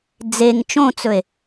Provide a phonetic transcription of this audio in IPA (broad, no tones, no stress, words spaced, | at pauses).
d͡zeŋ t͡ʃõt͡sɵe̯